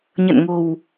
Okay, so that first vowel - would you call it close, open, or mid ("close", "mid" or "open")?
mid